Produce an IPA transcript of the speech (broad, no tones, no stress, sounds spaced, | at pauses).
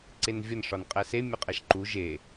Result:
ǀ e n vʲ ɒ n ʂ ɒ n qʼ æ s e mʲ ɒ qʼ æ ʃ ǃ u ʒ e